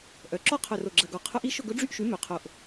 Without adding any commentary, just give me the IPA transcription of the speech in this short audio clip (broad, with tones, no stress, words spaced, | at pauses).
ʔœ˩˧ǁɔ˦˥ qʰœ˨˩ro˨˩ɡ͡ǁɐ˨˩ɡɔ˨˩ qʰʊ˦˥ʔi˦˥ʃʊ˥˧ ɡʊ˦˥ɖ͡ʐy˥˧ʔʃy˨˥ mø˩˧qʰo˨˩ʔ